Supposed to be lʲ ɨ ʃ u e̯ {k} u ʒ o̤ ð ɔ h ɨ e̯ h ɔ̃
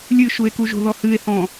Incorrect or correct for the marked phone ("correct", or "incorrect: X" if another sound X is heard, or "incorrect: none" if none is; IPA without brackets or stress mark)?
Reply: correct